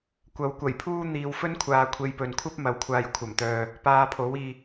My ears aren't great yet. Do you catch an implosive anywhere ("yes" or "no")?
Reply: no